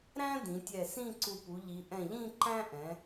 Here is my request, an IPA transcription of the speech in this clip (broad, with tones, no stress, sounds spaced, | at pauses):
ɾ æ̃˥ d ĩ˩˧ tʲ ɛ˧˩ s ĩ˥˧ ǀ u˧˩ p u˩˧ ʎ i˩˧ ʔ ɛ̃˧˩ ʎ ĩ˥˧ ǃ æ̃˥ ʔ ɛ̃˩˧